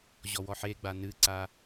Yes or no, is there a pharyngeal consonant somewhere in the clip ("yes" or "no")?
yes